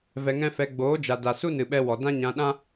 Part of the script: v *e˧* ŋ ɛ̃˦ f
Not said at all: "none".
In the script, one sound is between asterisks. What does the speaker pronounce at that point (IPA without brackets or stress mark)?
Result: ɛ˧